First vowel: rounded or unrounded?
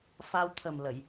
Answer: unrounded